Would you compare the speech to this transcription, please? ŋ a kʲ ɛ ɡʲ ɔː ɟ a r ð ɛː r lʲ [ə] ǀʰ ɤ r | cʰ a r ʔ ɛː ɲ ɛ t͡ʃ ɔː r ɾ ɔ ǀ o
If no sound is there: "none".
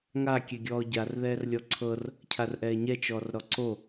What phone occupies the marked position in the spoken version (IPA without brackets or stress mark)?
ɔ